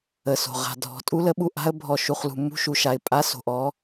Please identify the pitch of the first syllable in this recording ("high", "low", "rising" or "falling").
low